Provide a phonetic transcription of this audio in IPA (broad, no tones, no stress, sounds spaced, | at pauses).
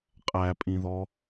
qʼ æ pʼ ĩ ð ɔ